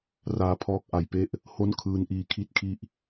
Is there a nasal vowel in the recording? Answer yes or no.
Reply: no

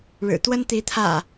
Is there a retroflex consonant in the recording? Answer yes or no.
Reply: yes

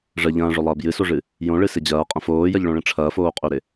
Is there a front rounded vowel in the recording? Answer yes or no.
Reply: yes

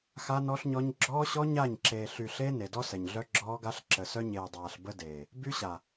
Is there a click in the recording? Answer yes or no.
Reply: yes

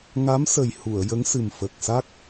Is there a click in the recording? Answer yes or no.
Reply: no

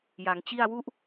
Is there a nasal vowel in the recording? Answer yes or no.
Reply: no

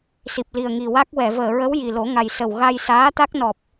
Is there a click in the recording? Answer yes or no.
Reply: no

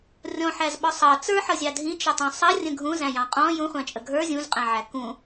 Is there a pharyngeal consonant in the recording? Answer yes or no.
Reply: yes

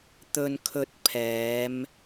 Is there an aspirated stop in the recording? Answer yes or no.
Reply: yes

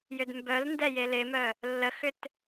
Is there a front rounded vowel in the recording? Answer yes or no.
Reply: yes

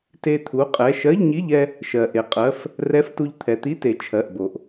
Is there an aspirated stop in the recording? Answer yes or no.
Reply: yes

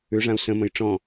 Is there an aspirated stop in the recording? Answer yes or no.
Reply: no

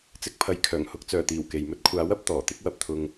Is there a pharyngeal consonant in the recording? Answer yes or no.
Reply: no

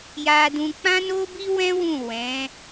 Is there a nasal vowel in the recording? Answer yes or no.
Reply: yes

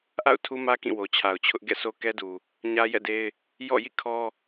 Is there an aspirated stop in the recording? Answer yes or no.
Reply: yes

